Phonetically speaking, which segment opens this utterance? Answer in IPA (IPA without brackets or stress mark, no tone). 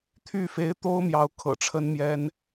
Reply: t̪ʰ